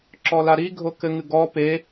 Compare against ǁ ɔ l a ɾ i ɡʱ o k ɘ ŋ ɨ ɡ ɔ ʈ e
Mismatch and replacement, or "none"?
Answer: ʈ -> p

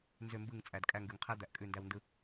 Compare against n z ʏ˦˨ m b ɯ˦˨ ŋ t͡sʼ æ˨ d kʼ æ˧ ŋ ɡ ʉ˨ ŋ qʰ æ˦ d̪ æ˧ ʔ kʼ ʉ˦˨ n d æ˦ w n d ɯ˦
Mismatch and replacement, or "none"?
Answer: none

